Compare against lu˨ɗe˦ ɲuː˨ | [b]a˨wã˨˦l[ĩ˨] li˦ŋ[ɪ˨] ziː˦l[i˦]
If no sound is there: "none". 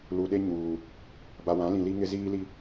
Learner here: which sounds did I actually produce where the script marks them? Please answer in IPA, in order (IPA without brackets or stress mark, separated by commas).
b, ĩ˨, ɪ˦, i˦